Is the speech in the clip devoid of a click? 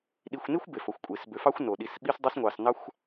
yes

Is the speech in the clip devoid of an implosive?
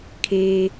yes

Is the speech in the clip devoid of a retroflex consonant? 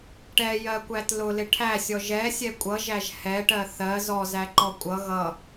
no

